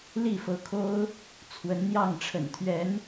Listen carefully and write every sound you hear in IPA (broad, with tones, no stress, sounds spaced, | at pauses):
l i˥˩ f ɤ˧˥ kʰ o˥ ʊ̯ | t͡sʰ w ə˧˥ n n̪ j ɑ˥˩ ŋ ʈ͡ʂʰ ə̰˨˩ n t̪ʰ ɥ ɛ˧˥ n